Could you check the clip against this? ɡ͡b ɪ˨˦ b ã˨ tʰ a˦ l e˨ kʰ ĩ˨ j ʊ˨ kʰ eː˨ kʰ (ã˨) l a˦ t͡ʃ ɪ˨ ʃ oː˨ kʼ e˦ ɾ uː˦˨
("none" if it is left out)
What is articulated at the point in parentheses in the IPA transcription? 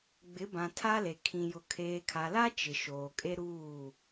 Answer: a˨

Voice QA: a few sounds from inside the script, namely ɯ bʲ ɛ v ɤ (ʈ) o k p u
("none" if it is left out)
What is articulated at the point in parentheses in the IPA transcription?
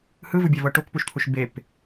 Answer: ʈ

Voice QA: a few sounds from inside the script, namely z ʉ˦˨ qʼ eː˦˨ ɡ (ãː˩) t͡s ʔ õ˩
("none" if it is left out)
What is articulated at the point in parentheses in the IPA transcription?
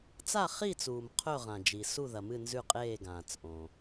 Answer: ãː˩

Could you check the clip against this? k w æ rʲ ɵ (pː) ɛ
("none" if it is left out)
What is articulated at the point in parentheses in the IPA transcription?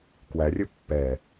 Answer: pː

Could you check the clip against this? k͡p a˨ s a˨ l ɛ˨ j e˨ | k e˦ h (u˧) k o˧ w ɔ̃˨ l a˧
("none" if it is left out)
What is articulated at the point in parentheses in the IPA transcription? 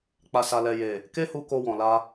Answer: u˧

